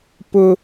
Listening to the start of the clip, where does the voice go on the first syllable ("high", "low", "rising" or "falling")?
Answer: high